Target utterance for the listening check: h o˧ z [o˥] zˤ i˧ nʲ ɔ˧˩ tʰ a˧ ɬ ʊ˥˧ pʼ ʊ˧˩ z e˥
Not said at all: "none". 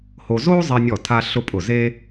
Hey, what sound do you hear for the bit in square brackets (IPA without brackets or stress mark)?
o˥